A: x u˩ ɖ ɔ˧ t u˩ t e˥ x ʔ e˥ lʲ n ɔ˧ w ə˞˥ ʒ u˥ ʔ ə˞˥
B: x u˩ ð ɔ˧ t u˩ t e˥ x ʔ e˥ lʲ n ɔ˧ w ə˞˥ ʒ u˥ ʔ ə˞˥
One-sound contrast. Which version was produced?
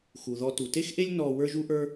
B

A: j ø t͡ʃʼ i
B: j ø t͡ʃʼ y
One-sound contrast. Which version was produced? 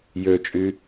B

